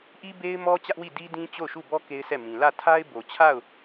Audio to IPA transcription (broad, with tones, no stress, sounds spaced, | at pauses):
ʔ i˦ b e˦ ɪ̯ m ɔ˦ t͡ɕ ä˦ ʔ w i˦˨ d i˦ d ĩ˦ t͡ɕ o˦˨ ʊ̯ ʃ u˦˨ b ɔ˦ k e˦ ɪ̯ sʰ ɛ˦˨ m ĩ˨ l ä˦˨ tʰ a˦ ɪ̯ b o˨ t͡ɕʰ a˦˨ ʊ̯